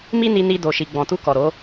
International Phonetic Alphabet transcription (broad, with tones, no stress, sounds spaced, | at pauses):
m i˦ n i˧ n i˧ d o˨ ʃ i˨ ɡ͡b ɔ̃˨ t u˧ k ɔ˨ ɾ o˨˦